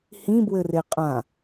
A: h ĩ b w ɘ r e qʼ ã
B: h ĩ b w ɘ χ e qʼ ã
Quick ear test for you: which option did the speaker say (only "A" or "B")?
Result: A